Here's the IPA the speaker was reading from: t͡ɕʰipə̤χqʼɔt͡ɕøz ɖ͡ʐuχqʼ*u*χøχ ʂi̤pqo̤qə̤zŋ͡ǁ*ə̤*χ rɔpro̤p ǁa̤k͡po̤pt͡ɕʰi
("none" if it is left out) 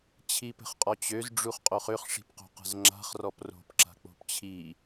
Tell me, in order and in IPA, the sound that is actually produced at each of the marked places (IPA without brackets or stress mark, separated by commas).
o, a̤